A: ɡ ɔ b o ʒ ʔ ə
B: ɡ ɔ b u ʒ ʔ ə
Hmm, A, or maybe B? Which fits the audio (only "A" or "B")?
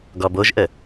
A